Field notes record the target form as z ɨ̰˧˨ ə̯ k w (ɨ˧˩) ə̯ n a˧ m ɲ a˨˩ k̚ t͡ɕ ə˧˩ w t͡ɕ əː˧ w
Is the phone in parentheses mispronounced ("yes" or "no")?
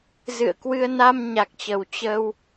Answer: yes